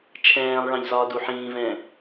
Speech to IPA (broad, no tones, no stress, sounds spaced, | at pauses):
t͡ʃʰ ɛ̃ː lˠ ɭ ɑ̃ ʎ z ɒː d u ħ ĩː v ɛ̃